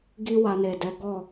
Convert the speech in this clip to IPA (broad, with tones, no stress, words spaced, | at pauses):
ɡi˦wa˧ne˨dɛ˨˦ ɡɔ˦˨